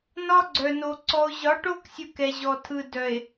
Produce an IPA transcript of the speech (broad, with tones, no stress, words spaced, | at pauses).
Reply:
nɒ˦ɡ͡ǀœ˨no˨ ǀɔ˨o̯ʑɒ˨˦ʈo˦ksʲɯ˨k ɛ˨ʑɔ˨tʰɯ˨ dœ˨e̯